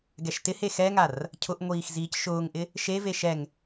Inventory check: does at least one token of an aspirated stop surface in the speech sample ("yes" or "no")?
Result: yes